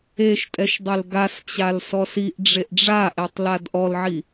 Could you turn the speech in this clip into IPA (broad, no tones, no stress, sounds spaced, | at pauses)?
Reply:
e ʃ tʼ ɛ ʃ dˤ e l ɡ a s t͡ɕ a l s ɔ s i ʔ ɖ͡ʐ e ʔ ɖ͡ʐ a ʔ e tˤ l a d ʔ ɔ l ʕ i